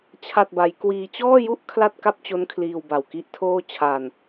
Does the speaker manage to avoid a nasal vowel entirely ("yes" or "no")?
yes